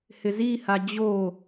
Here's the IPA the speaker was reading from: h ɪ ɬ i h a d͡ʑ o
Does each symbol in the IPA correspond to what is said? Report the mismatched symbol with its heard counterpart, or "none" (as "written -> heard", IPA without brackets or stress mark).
ɬ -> z